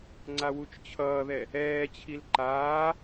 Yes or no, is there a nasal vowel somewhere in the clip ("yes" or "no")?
no